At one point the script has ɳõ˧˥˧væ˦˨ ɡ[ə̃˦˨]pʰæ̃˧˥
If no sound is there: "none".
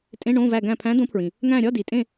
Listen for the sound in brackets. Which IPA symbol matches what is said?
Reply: æ̃˦˨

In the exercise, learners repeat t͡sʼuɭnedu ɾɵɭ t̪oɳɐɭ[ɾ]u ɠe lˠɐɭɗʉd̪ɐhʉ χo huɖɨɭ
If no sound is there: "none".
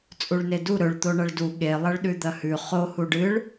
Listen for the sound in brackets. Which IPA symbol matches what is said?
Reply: d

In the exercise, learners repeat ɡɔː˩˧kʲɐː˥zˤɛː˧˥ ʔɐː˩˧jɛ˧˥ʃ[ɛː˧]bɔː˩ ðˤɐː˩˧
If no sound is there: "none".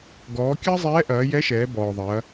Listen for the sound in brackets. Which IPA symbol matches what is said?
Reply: ɛː˩˧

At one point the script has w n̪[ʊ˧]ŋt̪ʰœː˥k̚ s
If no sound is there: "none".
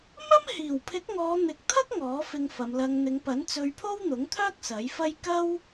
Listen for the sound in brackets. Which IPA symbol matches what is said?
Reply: ʊ˨˥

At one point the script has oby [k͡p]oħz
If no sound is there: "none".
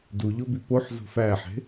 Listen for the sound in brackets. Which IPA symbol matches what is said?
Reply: p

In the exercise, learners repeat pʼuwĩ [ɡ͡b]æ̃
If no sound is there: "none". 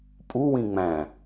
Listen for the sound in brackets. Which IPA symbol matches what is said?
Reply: ŋ͡m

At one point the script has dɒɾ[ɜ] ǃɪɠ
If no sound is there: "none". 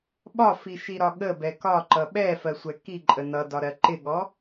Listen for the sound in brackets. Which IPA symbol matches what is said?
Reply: ɜ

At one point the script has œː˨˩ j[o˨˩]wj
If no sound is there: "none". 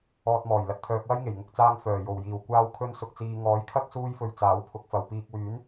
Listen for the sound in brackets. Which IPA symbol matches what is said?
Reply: o˨˩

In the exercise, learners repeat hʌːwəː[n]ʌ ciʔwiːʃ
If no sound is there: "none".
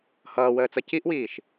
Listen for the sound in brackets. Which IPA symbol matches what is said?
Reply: t͡s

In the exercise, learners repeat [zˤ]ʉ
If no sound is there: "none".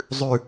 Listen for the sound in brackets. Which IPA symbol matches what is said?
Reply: zˤ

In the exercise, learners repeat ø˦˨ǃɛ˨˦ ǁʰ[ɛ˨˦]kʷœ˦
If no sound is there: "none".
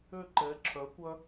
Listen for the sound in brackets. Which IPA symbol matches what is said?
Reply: œ˨˦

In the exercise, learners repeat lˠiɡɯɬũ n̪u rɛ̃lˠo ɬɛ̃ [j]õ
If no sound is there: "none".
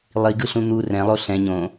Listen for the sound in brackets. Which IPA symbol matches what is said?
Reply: ɲ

